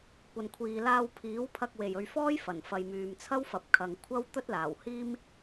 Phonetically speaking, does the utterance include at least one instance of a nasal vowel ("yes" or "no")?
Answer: no